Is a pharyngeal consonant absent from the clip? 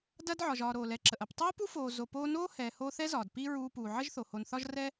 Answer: no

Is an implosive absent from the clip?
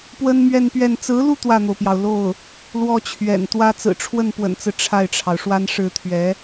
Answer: yes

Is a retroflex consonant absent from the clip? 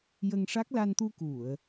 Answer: no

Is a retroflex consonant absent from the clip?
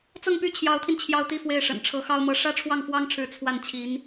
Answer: no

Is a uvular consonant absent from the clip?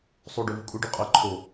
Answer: no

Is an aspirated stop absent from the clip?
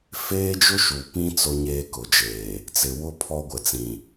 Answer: no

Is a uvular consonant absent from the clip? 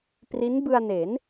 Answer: yes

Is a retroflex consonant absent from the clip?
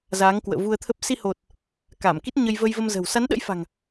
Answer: yes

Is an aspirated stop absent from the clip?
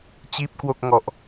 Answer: yes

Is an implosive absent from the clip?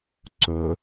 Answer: yes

